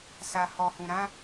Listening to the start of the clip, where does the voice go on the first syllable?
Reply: low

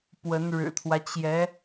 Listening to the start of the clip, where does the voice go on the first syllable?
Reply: rising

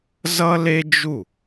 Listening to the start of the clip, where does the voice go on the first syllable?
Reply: high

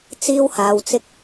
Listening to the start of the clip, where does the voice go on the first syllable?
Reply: high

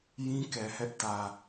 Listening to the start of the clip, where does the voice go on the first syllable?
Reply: high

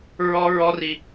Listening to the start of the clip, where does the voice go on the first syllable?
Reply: high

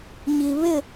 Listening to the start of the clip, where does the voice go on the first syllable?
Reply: low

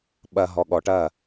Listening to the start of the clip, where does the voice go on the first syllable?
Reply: low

